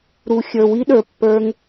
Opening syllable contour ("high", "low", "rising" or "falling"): low